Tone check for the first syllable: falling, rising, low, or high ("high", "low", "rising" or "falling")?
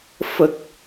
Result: low